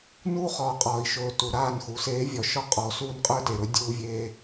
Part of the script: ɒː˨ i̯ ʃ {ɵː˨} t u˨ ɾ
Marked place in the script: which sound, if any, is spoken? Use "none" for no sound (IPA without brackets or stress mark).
ɵː˨